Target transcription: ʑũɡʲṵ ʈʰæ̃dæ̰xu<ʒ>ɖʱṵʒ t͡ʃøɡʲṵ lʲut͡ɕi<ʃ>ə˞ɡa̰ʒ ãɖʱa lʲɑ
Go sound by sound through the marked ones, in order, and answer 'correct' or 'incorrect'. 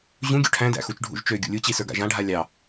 incorrect: t͡ʃ, incorrect: s

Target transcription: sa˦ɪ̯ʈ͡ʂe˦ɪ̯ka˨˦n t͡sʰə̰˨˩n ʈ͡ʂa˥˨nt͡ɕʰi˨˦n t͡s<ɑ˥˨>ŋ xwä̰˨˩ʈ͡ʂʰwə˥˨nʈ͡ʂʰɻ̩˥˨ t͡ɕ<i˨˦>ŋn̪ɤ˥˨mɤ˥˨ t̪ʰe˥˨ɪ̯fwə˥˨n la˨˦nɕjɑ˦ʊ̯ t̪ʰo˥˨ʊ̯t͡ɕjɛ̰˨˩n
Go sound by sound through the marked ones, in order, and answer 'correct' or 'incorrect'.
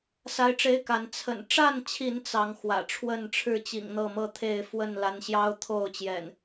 incorrect: ɑ˨˦, incorrect: ḭ˨˩

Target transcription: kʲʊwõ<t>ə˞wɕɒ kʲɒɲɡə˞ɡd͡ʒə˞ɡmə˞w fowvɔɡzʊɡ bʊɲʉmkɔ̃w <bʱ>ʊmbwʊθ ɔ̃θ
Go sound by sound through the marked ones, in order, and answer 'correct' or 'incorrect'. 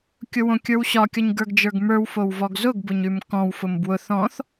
incorrect: kʲ, incorrect: f

